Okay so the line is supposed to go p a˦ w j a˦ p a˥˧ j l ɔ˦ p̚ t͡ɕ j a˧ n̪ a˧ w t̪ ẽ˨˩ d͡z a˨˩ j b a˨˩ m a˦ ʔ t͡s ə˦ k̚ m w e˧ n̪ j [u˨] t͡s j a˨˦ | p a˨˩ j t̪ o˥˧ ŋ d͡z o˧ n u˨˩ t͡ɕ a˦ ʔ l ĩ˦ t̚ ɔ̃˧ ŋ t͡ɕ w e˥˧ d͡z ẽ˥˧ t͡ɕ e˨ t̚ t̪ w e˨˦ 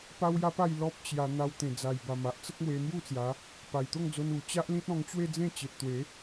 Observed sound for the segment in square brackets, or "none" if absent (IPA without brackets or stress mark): u˥˧